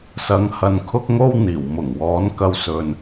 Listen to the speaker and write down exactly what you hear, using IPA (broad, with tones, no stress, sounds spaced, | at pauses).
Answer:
s ɐ˨˥ ŋ h ɐ˨ n kʰ ʊ˥ k̚ ŋ o˥ w n̪ iː˨˩ w m ʊ˨˩ ŋ w ɔː˨˥ n k ɐ˧ w s ɵ˨ n